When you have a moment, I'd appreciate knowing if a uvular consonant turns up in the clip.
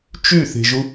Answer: no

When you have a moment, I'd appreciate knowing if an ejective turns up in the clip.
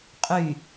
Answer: yes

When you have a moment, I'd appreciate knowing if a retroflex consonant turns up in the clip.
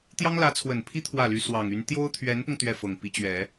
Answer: no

